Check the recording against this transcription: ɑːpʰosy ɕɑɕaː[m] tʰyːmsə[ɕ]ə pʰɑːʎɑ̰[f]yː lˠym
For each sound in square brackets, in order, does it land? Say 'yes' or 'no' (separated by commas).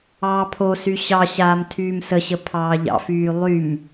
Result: yes, yes, yes